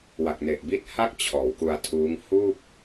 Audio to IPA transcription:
wa˨˩k̚ne˨˩ʔbi˦˥t̚ ha˥˩k̚ t͡ɕʰɔː˩˦wku˧a̯tʰuː˦˥ŋ huː˥˩k̚

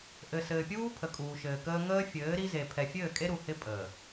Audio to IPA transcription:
ʔɘ˨sɘː˨pʲuː˦ pʰə˨kʼuː˨ʃɘː˨kəː˦ ŋəː˦fʲɘː˨˦ ɾi˦ze˨ pʰɛ˨fʲɘː˦˨kʼe˦ɾu˨ hɪ˦pʼəː˨

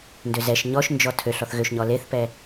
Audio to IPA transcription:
ndøzɛʃ ɲɔʃ nd͡ʒɔtʰøɬ ɔθɣøʃɲɔ leθpɛ

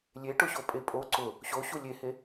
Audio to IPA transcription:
lʲeʈʊɕopʼe pʼo ǀʊ | ɕoɕu lʲehe

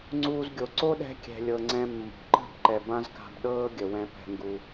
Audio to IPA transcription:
ŋ͡ǀuː˦zɡʲo˧ ǀo˦ɗɛ̤˧kʲɛ̤˨lʲɤ˨ ŋ͡ǀɛ̃˧mːo̤˨ ǃə̤˦˨bǃɛ˨ bã˦zka̤˧b ɗɤː˦ ɡʲə˨wɛ̃˧ pɛ̤˧ŋɡu˧

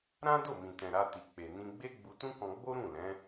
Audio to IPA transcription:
ɾã˦do˦˨mĩ˨tɛ̃˨ ɾa˧ti˨k͡pe˨ nĩ˧ɡ͡be˦ ɡ͡bu˧tũ˦kɔ̃˧ɡ͡bo˦ ɾũ˦˨lɛ̃˨˦

